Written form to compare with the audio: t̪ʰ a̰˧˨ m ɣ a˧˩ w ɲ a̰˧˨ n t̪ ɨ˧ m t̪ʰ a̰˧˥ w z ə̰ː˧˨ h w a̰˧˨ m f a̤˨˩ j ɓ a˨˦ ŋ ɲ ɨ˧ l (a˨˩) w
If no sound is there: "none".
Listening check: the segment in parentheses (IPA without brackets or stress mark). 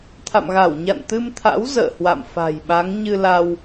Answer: a˧